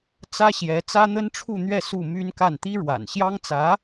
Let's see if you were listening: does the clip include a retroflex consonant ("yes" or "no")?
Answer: yes